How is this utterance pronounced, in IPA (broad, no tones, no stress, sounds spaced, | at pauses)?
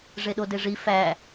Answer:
ʐ e ɗ o d e ʐ i f æ